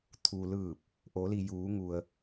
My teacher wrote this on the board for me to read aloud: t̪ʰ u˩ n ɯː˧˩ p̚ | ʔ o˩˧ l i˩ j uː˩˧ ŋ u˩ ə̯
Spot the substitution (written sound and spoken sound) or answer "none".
n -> l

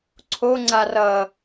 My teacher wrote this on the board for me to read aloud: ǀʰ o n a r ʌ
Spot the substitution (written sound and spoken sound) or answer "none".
n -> ŋ͡ǀ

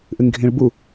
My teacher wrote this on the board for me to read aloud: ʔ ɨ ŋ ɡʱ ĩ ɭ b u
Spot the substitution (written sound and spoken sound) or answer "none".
none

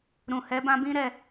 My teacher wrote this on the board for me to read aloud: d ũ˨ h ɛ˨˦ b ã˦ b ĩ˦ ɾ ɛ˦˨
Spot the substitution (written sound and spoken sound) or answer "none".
d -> ɾ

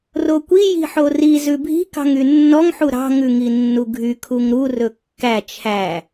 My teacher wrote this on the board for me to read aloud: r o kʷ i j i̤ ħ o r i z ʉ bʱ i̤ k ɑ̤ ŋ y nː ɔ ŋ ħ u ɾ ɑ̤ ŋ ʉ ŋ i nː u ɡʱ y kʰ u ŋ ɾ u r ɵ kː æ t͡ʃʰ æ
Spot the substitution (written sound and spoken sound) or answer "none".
none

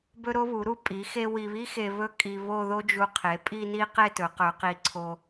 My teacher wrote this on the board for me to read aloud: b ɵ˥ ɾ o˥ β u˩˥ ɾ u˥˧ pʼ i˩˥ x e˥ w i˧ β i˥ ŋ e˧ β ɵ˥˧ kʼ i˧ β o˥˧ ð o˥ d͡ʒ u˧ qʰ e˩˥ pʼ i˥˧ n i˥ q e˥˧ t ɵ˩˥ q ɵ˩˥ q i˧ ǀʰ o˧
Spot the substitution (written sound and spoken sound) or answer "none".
ŋ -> x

